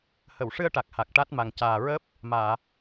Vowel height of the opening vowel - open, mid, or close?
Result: mid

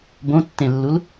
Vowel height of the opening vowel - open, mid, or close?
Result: mid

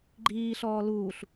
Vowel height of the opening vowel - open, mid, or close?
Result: close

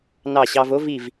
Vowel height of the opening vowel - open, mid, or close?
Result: open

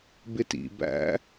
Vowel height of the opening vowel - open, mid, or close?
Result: close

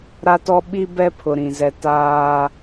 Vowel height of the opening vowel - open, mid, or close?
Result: open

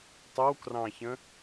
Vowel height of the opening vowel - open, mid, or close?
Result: mid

